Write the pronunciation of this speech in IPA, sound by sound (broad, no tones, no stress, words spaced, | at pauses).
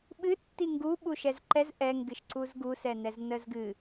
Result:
ɓɨ tːiŋɡu ɓuʃɛzǃɛz ʔɛŋɡɨʃǀuz ɡusɛnɛz nəzɡɨ